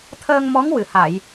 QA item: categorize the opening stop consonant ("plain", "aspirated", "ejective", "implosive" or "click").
aspirated